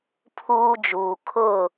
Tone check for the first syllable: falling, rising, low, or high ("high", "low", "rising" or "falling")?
high